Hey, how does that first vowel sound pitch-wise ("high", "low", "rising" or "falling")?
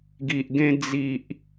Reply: low